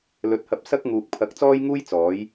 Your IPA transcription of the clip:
l ɵ˧ t̚ h ɐ˧ p̚ s ɐ˥ k̚ ŋ uː˨ k̚ pʰ ɐ˨˥ k̚ t͡s ɔː˥ j ŋ uː˥ j t͡s ɔː˨˥ j

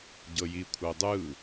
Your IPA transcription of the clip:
ɟ ɤ j i kʷʰ ɤ dˤ ɯ

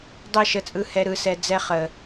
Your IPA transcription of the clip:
dˤ ɯ˦˨ ʃ ə˧ t͡sʼ ɯ˧ h ɛ˧ ɾ ɯ˨˦ s ɛ˧ d͡z ɛ˧ χ ə˨

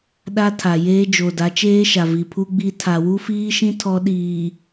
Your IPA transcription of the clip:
ɗ a˦ tʰ a˨ j eː˦ d͡ʒ o˨ d a˨˦ t͡ʃ eː˦ ʃ a˨ v i˨ pʰ u˦ ɡ͡b i˦ tʰ a˨ w u˦ f iː˦ ʃ ĩ˦ tʰ ɔ˦ ɗ iː˨

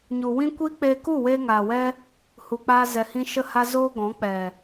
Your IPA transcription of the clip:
ɲ u˨ w ĩ˦ kʷ i˦ k͡p eː˧ k u˦˨ w eː˧ ŋ aː˨ w ɛ˦ | h u˨ k͡p aː˧ z ɛ˨ h ĩ˧ ʃ ə˦ h a˦ z oː˦ ɡ ɔ̃˨˦ k͡p ɛ˨

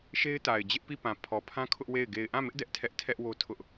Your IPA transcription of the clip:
ʃ e˦ ɪ̯ t a˨ ɪ̯ d͡ʑ ɪ˦ ʔ p i˦˨ p ã˨ pʰ ɔ˨ pʰ ã˦ kʰ ʊ˦ ʔ w e˦˨ ɪ̯ ɡ e˨ ɪ̯ ʔ ã˦˨ m ɪ˦ ʔ d ɛ˦ ʔ tʰ ɛ˦ ʔ tʰ ɛ˦ ʔ w o˦ tʰ ʊ˦ ʔ

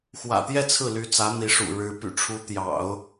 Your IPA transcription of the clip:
x w ä̰˨˩ t̪ j ɛ˥˧ t͡sʰ ɹ̩˥˩ l y˧˥ t͡s ä˧˥ n̪ i˧˥ ʂ ṵ˨˩ ɻ ɻ̩˧˥ p y̰˨˩ ʈ͡ʂʰ u˧˥ t̪ j ɑ̰˨˩˦ ʊ̯

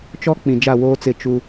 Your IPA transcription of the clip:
t͡ʃ ɔ˦ k͡p ĩ˨ d͡ʒ a˦˨ w oː˦ t͡s ɪ˦˨ t͡ʃ u˦

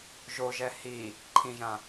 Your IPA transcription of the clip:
ʒ o ʒ ɛ h i | ǃʰ ĩ ʒ ã

